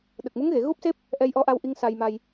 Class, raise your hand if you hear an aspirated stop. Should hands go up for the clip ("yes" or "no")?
no